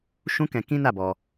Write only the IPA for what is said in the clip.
ʃ ũ˦ k ɛ̃˧ k ĩ˦ n a˦˨ b ɔ˧

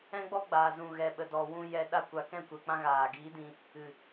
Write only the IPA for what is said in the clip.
ɛ̃˦ ɡ͡b ɔ˦ ɡ͡b aː˨ z ũ˨ ɣ ɛ˨ ɓ ə˨ d ɔ˨ w ũ˧ j ɛ˧ ɗ a˧ kʷ a˨ k ɛ̃˦˨ kʷ ɛ˨ k͡p ã˧ ɣ aː˨ ɡ iː˨˦ d ĩ˧ | ɨ˨

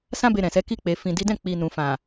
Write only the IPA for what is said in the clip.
s ã˦ b e˧ ɾ ɛ̃˨ s ɛ˨˦ k i˧ k͡p e˨ f ĩ˨ d i˨˦ d ɛ̃˦˨ k͡p i˨ n ũ˨ f ã˨

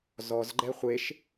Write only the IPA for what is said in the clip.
z ɔ z ɡ͡ǃ ɛ χʷ e ʃ

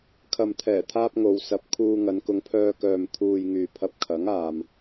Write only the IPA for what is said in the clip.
kʰ ɐ˨ m t̪ʰ ɛː˨˩ t̪ʰ aː˧ p̚ ŋ o˨ w s ɐ˨ p̚ kʰ uː˧ ŋ ɐ˨˧ n k ʊ˨˧ ŋ pʰ œː˧ k œː˨ m t̪ʰ uː˨ j ŋ yː˨ pʰ ɐ˧ p̚ kʰ ɐ˨˥ ŋ aː˨ m

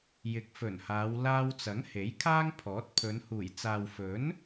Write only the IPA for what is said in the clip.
j ɪ˨˥ k̚ f ɵ˨˩ n h aː˨˧ w l aː˧ w t͡s ɐ˨˥ ŋ h e˨˥ j kʰ aː˥ ŋ pʰ ɔː˨˥ t̚ pʰ ɵ˨˧ n h uː˨˩ j t͡s aː˨ w f ɵ˨˥ n

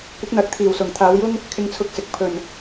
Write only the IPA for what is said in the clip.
kʷ ɪ˨˥ k̚ n̪ ɐ˨˥ k̚ t̪ʰ iː˨˩ w s ʊ˨˩ ŋ t̪ʰ aː˨˧ w j ʊ˥ ŋ | kʰ ɪ˧ ŋ t͡sʰ ʊ˧ k̚ s ɪ˨˥ k̚ pʰ ɵ˨˩ n

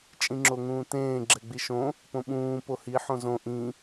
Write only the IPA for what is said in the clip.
t͡ʃʼ ĩ ŋ͡ǁ o ŋ ũː t ẽː ɡ͡ǁ ɛ ɡ͡b i ʃ õ | p õ ɓ ũː p o h i ħ õ z õ ʔ ĩ

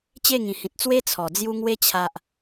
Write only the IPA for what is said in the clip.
t͡ɕ e˥˧ ŋ ĩ˨˩ h ĩ˨ t̚ t͡s w e˦ t͡sʰ ɔ˨˩ d͡z j u˧ ŋ w e˧ t͡ɕʰ a˨ ʔ

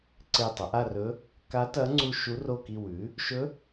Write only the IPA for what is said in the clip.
ǀ e˦˨ tˤ ɐ˩˥ ʔ a˦˨ r ɵ˧˥ | k a˧˥ t ɐ˧˥ ŋ͡ǀ u˦˨ ʃ u˧˥ r o˦˨ k i˦˨ w ʉ˩˥ | ʃ ɵ˧˥

